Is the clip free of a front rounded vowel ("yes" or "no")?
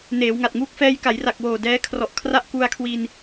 yes